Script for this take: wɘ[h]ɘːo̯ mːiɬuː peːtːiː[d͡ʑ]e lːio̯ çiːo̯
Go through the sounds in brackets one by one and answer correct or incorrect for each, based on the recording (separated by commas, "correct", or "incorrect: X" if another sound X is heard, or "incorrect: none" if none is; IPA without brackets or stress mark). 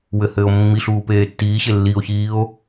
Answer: correct, incorrect: ɕ